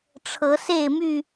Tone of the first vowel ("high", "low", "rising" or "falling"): rising